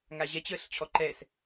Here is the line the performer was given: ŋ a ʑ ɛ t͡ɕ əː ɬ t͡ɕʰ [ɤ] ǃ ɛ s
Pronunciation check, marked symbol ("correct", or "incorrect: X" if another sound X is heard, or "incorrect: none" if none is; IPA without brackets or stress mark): incorrect: ɔ